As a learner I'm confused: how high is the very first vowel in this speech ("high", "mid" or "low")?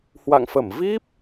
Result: low